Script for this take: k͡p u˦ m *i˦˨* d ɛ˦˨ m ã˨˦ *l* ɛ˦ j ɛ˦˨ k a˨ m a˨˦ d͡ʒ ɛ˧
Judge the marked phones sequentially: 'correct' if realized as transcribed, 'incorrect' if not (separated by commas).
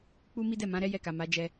incorrect, incorrect